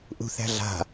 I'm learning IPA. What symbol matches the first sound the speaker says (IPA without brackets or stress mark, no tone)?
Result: ʔ